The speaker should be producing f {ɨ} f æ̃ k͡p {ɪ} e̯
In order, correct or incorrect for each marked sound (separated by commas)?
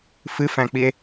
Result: correct, incorrect